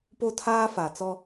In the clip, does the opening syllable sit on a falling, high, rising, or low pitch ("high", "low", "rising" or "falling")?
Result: high